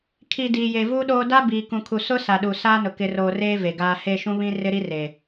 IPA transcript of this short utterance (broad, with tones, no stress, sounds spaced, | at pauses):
kʰ i˨ d iː˨ j e˨ v u˦ ɗ oː˦ d a˦ b iː˨ k ũ˨ kʰ u˨ s ʊ˦ s a˨ ɗ u˨ s aː˦ n ʊ˨ k ɪ˨ r oː˨ r eː˦ v e˨ ɡ aː˦ h e˦˨ ʃ ũ˦ β ĩ˦ r ɪ˦ ɾ i˦ r e˨